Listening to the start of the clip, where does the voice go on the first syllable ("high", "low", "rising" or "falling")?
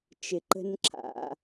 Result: low